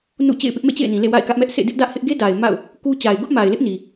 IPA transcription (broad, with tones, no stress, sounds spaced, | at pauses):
n ṵ˦˨ t͡ɕ ḛ˦˨ ɪ̯ p ɪ˦ ʔ m ḛ˦˨ t͡ɕ ḛ˦˨ ɪ̯ n ĩ˨ l ḛ˦˨ w a̰˦˨ ɪ̯ k ä˦ ʔ m ɛ˦ ʔ sʰ ḛ˦˨ d ɪ˦ ʔ d ä˦ ʔ h ɪ˦ ʔ ɡ e˦ d a˨ ɪ̯ m a̰˦˨ ʊ̯ | k u˦ t͡ɕ a˨ ɪ̯ ɡ ʊ˦ ʔ m a˨ ɪ̯ l ɪ˦ ʔ n i˨